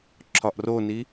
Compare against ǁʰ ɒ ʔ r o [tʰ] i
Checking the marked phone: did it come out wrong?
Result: yes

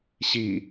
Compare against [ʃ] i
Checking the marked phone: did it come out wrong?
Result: yes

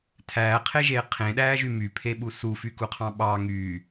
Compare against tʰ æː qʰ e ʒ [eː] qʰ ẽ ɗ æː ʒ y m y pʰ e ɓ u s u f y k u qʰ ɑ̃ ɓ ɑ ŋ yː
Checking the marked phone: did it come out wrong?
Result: no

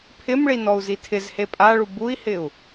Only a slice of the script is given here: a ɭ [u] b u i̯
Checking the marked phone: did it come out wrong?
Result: no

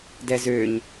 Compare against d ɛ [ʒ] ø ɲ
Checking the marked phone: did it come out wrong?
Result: yes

